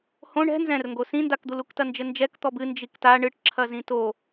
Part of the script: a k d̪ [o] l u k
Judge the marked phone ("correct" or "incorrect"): incorrect